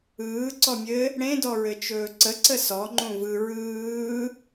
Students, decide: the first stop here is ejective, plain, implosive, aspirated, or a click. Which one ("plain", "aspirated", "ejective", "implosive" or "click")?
click